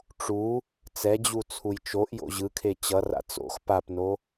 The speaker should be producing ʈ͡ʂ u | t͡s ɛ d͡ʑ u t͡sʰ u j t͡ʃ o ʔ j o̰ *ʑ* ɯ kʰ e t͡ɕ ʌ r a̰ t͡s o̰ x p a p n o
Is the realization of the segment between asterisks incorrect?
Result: no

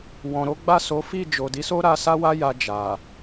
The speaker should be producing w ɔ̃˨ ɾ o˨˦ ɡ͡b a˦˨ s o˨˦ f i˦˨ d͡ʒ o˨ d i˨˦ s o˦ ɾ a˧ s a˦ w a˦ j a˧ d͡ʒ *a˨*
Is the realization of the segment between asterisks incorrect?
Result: no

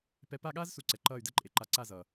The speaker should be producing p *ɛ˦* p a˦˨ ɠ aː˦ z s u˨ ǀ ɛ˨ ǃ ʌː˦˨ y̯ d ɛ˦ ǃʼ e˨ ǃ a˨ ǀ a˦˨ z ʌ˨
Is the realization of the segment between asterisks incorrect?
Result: yes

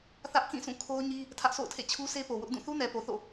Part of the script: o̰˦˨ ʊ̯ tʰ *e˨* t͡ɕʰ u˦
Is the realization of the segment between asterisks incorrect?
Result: yes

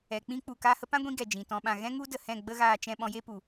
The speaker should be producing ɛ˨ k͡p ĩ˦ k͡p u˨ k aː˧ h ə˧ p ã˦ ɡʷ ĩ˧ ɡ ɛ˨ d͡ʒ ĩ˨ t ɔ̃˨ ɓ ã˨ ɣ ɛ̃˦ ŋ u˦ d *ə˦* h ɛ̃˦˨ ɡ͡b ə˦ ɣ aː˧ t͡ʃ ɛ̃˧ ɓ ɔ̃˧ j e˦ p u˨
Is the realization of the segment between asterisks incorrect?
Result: yes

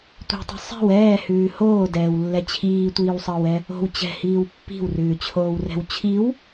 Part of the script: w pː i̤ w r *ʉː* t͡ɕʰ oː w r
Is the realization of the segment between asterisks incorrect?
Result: no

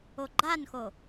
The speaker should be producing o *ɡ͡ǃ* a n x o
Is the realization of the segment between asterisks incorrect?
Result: no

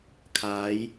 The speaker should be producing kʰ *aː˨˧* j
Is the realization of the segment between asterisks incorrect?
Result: no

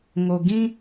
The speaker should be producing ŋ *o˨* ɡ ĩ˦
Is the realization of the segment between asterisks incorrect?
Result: no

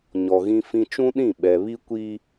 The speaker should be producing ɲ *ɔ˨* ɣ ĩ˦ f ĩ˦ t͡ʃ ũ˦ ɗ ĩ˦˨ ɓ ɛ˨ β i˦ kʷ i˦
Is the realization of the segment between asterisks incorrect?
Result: no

